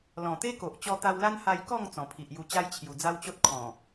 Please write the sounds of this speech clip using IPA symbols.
l ɔ̃˨˩ t̪ e˦ k o˨ ʔ t͡ɕ ɔ˧ t̪ a˧ w l a˦ n h a˧ j k ɔ˥˧ ŋ t͡s ɔ̃˨˩ pʰ i˨ ʔ j u˧ t͡ɕ a˦ j t͡ɕʰ j u˨˩ d͡z a˦ w t͡ɕ o˦ t̚ kʰ ɔ̃˨˩

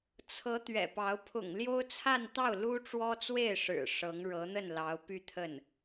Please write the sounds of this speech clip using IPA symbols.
t͡sʰ ɤ˧˥ t̪ ɥ ɛ̰˨˩ p ɑ˧˥ ʊ̯ pʰ ʊ̰˨˩ ŋ l j o˥ ʊ̯ t͡sʰ a˥˧ n t̪ ɑ˥˩ ʊ̯ l u˥ ʈ͡ʂ w ɔ˥ t͡s w e˥˩ ɪ̯ ʂ ɻ̩˨˩ ʂ ɤ˧˥ ŋ ɻ ɤ˧˥ n̪ ə˥˩ n l ɑ˧˥ ʊ̯ p y˥˧ t̪ʰ ə˥˩ n

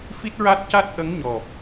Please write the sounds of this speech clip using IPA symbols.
f i˦˥ t̚ ɹ a˦˥ t̚ c a˦˥ t̚ ʔ ə˧˥ ŋ ɲ ɔ˨˩ p̚

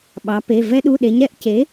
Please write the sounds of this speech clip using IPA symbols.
ɓ ɑ˩˧ p e˩˧˩ v ɛ˧ ɗ u˩˧˩ ɗ e˩˧ ɲ ɾ ɛ˧ ʔ c e˩˥

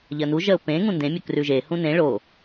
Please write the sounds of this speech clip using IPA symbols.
ʎ ɜ n u ʒ ɜ ʊ̯ p ẽ ŋ ũ n d ẽ mʲ ɵ k r ʉ ʒ e h ũ n ẽ ɭ o

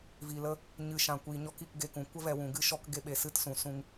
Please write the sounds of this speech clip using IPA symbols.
v i˨ l ə˦ | ɲ ɨ˨ ʃ ã˨ kʷ iː˨ ɲ ɔ˧ k i˦˨ k ɡ e˧ k ũ˨ kʷ ə˦ v ɛ˨ w ũ˨ ɡ ɨ˦ ʃ ɔ˧ k ɡ e˧ ɓ e˨ s ɨ˦˨ t s ũ˨ s ũ˧ ŋ

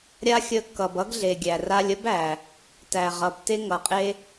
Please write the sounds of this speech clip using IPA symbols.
ɾʲ a˦ xʲ ə˧ kː ʌ˨ b ʌ˦ ɡ ɮ e˨ ɡʲ æ˨ r a˧ lʲ ə˦ b æ˨ | t æ˨ ʁ ʌ˨ b t e˦ ŋ ʌ˨ qʼ e˦

